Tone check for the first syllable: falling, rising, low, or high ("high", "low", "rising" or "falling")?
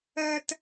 high